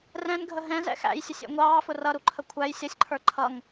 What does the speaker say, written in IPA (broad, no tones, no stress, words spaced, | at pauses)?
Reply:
rɛ̃nɡʱə ɦɛ̃zɛ̰ xæ̰jsʲəsʲɛ̰ ŋʷɑːfʊ rʌɾuǃʰə kʷʰæj sʲʌsʲǃʰə˞ ǃʰʌŋ